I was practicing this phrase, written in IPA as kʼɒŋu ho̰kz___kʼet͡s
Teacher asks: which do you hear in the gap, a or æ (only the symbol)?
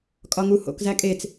æ